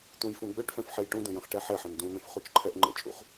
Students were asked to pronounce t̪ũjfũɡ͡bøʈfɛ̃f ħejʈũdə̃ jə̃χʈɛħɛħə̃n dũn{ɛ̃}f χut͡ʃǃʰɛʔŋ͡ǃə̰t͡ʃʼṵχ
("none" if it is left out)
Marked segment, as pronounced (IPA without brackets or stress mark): ə̃